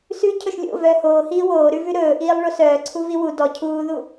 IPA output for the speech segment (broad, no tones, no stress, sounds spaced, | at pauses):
s ʉ cʰ ɵ ʃ lʲ o̰ v œː h oː h iː w oː ɾ ʉ v ʉ ɾ ɵː ʔ iː lˠ ɭ o s œː ǀʰ u v i w u d ɔ cʰ uː ð u